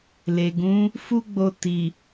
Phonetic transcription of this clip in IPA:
l e˨ ɡ ũ˨˦ | f u˦ ɡ͡b o˧ t i˨

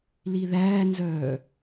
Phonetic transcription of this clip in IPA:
l i ð æː n z œː

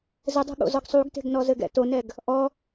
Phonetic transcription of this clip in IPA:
z ɘ dˤ o̤ ɠ o̰ z ɔ ɡ sˤ u ɡ t e̤ ɡ n ɔ z ɘ ɡ ɛ̰ t o n ɛ ɡ | ʔ ɔ

